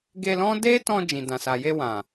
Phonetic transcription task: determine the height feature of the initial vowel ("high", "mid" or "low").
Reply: mid